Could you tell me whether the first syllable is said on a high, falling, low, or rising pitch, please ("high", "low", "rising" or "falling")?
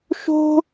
high